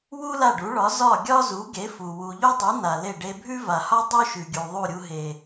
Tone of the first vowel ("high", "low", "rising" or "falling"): high